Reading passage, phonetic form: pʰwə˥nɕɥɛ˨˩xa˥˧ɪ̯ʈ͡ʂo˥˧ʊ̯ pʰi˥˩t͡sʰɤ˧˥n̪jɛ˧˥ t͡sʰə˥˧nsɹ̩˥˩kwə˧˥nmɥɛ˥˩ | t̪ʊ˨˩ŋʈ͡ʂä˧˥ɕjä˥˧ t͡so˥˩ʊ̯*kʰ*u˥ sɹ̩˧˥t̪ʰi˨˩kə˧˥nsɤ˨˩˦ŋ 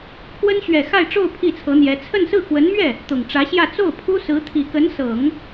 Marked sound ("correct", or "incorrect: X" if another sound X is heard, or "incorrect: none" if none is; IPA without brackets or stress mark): incorrect: pʰ